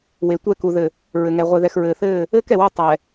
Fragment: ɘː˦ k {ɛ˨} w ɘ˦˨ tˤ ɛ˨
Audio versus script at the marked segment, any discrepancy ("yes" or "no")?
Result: no